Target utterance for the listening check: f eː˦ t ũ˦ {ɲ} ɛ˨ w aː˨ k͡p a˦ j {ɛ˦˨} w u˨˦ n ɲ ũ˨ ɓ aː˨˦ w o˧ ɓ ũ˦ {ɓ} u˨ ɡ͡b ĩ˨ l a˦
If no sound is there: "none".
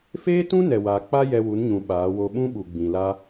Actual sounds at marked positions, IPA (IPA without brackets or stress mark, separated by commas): n, ɛ˧, ɓ